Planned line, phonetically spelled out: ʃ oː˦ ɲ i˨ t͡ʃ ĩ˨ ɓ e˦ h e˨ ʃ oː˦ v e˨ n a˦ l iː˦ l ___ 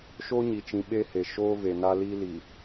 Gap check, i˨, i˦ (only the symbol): i˨